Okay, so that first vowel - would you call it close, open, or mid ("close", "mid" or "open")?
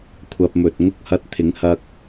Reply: open